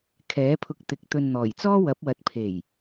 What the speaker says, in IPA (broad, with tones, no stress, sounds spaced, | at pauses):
kʰ ɛː˨˥ pʰ ʊ˧ k̚ t̪ ɪ˨˥ k̚ t̪ ɵ˨ n n̪ ɔː˨˩ j t͡s ɔː˥ w ɐ˨˥ p̚ w ɐ˨˥ t̚ pʰ e˨˩ j